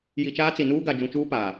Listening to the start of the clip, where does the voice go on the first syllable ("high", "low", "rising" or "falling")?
low